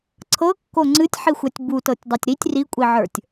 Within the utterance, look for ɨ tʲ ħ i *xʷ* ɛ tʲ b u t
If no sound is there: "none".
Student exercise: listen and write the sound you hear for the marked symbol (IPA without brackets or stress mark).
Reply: xʷ